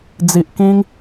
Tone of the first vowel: low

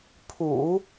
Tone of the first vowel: low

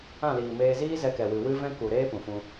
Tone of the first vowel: falling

